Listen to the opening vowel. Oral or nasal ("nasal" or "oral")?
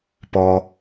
oral